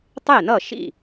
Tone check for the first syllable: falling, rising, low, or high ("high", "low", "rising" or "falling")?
falling